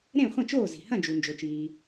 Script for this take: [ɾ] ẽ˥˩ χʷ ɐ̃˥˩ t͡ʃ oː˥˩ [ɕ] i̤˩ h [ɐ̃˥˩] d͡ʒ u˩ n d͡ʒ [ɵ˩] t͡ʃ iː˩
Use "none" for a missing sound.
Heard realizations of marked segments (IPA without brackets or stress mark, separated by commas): ɾ, z, ɐ̃˥˩, ɵ˩